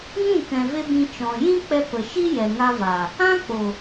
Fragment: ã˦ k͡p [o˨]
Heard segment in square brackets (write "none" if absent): o˨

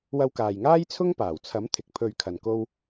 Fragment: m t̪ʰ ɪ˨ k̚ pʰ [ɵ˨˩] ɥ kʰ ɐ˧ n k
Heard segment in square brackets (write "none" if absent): ɵ˧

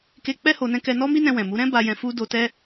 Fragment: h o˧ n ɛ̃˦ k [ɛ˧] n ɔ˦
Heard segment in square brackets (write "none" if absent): ɛ˧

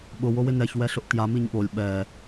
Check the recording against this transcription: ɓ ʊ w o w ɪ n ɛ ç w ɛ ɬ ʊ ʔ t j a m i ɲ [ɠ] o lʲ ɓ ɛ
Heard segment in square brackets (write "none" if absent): ɠ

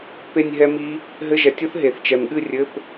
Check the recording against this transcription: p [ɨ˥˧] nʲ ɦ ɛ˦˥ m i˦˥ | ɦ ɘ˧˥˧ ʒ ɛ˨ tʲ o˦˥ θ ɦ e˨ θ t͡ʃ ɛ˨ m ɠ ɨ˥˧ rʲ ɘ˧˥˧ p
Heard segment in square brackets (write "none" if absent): e˥˧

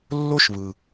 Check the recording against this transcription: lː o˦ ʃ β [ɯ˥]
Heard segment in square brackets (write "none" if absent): ɯ˩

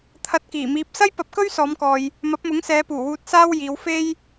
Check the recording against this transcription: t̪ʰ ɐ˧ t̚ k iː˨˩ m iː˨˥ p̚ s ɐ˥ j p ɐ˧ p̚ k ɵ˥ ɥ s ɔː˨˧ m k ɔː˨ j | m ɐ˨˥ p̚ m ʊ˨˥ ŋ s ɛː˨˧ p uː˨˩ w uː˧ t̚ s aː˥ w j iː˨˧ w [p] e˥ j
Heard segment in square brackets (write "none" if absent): f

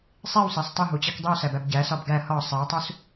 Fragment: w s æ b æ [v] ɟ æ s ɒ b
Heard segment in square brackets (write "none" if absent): b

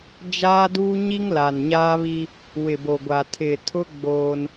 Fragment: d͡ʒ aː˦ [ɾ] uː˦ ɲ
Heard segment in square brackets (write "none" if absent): d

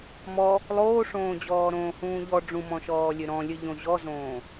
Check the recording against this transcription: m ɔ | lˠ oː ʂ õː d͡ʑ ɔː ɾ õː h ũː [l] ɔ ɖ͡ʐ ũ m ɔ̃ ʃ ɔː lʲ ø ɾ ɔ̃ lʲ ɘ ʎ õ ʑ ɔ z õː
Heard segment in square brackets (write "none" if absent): ʎ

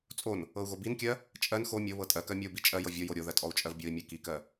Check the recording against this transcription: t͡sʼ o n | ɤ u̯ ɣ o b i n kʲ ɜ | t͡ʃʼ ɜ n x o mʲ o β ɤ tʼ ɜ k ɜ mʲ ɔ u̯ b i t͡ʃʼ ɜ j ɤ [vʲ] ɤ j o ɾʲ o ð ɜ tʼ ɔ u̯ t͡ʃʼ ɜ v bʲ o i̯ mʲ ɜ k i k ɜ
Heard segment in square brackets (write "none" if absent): vʲ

